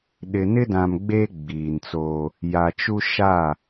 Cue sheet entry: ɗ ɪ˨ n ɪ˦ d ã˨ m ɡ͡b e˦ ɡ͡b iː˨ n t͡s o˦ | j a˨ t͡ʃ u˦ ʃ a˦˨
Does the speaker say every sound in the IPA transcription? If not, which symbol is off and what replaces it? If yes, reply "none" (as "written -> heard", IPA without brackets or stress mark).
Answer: none